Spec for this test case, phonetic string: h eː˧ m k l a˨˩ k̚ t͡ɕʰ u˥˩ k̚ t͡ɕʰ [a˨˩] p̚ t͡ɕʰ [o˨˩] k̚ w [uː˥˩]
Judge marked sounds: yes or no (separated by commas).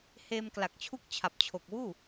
yes, yes, yes